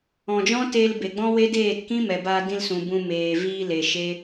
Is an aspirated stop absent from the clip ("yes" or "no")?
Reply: yes